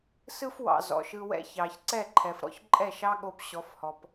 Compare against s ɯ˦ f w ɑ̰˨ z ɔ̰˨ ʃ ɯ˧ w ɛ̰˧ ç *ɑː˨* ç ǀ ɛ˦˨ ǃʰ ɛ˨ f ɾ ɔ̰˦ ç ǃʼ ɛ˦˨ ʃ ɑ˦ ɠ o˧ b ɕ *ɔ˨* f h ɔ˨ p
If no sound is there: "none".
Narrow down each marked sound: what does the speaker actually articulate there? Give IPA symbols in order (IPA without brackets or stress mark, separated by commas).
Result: ɑː˨, ɔ˨˦